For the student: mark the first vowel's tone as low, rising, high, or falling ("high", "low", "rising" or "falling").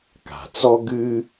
low